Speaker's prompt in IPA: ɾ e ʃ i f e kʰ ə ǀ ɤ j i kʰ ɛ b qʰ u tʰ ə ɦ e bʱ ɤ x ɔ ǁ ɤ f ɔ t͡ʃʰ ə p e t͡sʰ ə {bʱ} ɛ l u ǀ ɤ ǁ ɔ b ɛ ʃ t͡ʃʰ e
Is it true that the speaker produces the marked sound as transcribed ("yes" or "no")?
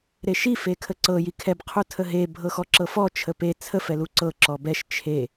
no